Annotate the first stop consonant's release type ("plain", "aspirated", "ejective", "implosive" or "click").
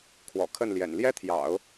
aspirated